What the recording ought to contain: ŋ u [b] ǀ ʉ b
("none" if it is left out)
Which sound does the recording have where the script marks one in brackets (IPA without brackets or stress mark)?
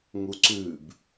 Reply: none